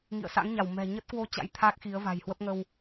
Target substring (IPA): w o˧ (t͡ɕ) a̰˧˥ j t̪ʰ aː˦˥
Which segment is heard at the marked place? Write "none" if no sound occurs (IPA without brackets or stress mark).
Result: t͡ɕ